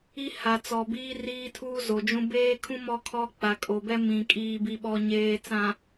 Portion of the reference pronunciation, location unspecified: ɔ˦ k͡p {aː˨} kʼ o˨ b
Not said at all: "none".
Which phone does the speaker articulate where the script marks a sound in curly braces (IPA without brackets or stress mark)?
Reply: a˨